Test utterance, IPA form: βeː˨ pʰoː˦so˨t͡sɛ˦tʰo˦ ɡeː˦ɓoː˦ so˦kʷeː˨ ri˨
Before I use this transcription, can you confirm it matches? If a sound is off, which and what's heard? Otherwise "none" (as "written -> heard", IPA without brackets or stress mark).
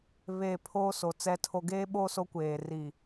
none